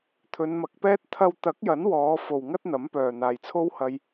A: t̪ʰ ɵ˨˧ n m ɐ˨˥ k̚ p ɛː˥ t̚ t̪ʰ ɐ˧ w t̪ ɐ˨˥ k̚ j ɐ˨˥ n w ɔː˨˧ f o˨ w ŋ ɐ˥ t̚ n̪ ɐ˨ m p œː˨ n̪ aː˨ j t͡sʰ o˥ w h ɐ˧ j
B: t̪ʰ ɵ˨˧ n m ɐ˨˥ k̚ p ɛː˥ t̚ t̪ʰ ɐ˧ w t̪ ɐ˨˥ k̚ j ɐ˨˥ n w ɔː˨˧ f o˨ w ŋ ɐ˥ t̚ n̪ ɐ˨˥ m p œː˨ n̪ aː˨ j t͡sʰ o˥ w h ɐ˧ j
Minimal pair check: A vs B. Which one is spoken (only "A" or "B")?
B